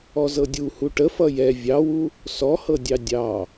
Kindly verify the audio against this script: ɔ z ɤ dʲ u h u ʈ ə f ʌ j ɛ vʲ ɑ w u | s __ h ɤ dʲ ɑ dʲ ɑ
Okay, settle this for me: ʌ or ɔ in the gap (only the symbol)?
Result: ɔ